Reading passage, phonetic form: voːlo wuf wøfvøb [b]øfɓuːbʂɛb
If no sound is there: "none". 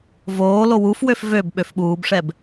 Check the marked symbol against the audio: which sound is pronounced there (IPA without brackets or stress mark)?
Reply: ɓ